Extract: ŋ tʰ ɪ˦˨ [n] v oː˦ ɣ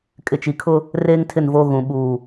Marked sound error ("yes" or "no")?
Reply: no